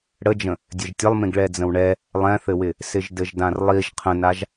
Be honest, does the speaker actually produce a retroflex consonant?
yes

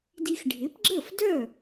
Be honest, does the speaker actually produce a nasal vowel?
no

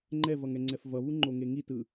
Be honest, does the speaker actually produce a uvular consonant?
no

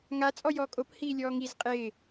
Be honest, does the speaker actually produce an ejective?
yes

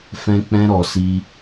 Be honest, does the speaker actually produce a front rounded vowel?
no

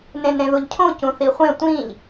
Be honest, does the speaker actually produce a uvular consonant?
yes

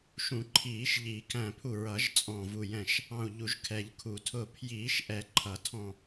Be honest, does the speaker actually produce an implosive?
no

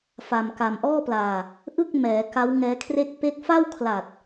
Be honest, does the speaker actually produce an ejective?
no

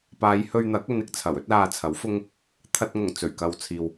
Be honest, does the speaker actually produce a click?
no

